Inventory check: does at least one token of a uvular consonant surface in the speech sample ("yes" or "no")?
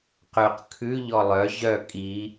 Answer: yes